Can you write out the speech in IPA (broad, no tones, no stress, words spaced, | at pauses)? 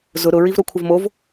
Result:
zʊ ɾʊ ɹivɾokʷʰəvmov